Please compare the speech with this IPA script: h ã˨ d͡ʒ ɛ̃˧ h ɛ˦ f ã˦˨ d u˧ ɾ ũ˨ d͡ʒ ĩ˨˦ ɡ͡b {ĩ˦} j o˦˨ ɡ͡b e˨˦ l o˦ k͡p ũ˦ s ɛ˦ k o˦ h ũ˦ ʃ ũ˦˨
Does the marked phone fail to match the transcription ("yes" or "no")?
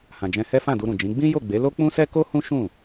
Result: no